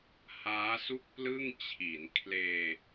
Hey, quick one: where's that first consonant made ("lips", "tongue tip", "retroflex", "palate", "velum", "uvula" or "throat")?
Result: throat